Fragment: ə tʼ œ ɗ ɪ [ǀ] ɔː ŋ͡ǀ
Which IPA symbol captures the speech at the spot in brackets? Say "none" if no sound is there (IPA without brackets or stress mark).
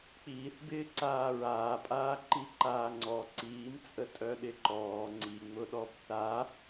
ǃ